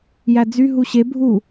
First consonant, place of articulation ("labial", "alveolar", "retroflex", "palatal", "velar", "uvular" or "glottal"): palatal